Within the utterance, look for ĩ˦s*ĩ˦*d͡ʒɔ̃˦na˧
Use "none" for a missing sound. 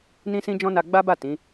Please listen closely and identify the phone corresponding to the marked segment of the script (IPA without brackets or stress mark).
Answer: ĩ˦